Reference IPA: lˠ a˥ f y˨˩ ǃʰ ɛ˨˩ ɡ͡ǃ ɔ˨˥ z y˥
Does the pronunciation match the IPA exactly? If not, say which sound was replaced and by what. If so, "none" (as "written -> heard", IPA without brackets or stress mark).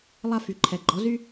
none